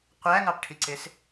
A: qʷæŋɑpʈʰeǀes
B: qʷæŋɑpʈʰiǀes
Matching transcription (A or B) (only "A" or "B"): B